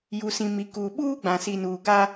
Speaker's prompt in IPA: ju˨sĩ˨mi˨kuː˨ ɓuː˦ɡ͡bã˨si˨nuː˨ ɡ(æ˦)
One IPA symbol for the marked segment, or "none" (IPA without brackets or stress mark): a˦